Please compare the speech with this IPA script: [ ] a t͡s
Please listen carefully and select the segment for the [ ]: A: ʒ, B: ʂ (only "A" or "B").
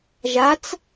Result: A